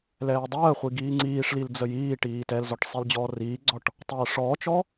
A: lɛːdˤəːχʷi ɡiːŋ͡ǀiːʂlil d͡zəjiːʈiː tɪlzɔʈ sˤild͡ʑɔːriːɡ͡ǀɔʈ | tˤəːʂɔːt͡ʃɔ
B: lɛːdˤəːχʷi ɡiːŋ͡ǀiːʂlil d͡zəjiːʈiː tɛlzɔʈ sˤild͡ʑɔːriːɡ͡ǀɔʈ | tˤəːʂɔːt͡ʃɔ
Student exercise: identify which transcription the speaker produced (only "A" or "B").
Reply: B